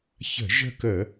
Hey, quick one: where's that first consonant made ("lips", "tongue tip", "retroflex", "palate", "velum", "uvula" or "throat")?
palate